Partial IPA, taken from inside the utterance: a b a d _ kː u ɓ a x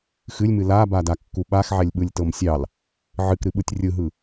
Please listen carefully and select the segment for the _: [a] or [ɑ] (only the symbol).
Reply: a